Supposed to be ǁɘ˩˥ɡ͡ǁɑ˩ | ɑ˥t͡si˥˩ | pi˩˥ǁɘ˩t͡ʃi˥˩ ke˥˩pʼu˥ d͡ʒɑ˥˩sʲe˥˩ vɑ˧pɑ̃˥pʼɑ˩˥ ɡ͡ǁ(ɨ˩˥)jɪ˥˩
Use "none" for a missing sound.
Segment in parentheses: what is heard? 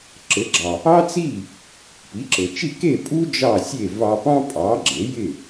e˩˥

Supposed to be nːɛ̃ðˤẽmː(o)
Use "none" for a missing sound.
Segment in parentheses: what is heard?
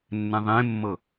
ɤ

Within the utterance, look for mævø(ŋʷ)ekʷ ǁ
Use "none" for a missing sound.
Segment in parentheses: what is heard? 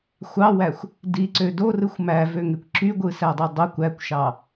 ŋ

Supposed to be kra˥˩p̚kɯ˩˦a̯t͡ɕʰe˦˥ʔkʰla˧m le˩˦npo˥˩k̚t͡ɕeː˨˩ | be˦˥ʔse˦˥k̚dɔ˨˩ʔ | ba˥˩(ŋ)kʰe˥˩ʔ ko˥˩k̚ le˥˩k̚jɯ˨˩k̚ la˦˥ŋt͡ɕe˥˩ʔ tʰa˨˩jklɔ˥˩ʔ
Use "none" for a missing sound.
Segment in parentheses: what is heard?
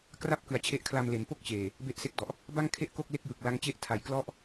ŋ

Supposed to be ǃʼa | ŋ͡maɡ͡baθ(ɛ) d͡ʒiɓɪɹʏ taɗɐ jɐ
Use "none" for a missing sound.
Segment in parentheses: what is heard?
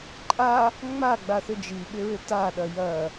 ʏ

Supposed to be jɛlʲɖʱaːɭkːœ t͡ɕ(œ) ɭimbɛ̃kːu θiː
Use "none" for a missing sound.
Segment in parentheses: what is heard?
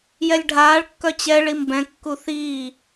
ɛ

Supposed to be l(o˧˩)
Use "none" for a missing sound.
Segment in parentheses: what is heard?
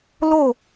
o˥˧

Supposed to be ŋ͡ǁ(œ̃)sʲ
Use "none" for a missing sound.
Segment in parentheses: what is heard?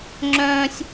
œ̃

